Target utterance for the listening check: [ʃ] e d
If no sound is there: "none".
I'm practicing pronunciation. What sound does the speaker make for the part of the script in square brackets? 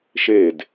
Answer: ʃ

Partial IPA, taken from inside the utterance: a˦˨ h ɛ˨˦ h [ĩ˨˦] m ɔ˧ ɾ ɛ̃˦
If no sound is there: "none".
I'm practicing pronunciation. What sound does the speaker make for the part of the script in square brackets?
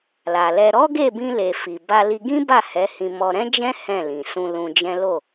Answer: ĩ˧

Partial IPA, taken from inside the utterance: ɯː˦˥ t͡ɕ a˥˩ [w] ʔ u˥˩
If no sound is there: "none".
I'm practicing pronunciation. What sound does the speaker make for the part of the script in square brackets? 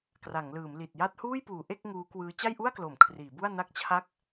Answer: j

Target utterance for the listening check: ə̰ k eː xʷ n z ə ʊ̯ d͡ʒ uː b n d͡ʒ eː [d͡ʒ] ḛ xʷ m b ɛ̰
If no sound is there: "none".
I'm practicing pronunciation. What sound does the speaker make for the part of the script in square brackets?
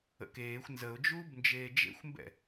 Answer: d͡ʒ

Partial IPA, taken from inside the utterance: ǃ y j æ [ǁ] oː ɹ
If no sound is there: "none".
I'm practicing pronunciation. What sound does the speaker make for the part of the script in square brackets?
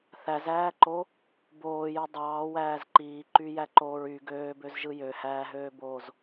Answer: ǃ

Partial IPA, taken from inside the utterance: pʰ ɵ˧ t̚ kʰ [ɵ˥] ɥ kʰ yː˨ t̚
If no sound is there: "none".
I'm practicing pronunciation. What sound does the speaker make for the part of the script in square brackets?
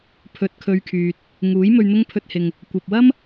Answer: ɵ˧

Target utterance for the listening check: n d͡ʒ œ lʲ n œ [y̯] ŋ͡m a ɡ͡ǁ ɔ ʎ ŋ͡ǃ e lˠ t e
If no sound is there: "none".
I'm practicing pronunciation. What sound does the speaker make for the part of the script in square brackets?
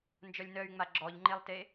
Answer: y̯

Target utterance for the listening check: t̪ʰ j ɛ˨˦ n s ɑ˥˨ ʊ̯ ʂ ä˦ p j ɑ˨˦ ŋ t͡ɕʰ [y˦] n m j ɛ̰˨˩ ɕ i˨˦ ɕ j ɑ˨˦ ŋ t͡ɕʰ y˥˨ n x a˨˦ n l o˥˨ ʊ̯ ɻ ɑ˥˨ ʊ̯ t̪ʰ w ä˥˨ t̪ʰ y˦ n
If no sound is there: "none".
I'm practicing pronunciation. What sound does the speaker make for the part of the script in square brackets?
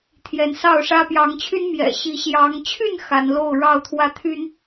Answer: y˦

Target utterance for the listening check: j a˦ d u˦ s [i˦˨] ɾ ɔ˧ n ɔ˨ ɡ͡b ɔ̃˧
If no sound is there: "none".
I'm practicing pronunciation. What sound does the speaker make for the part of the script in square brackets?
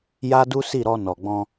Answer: i˦˨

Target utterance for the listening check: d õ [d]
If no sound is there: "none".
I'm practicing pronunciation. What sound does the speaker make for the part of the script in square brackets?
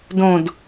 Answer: d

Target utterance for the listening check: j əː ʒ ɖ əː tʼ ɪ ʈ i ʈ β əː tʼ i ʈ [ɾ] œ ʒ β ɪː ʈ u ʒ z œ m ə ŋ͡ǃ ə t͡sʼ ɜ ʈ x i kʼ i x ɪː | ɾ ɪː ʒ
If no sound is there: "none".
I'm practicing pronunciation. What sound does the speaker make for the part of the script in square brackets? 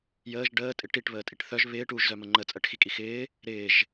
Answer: θ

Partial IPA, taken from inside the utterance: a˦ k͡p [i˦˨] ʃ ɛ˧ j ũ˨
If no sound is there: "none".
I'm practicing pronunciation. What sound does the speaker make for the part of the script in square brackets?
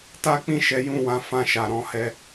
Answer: ĩ˦˨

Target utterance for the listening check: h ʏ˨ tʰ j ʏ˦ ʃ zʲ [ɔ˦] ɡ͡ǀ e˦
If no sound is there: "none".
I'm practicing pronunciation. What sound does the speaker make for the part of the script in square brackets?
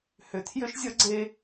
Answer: ʌ˦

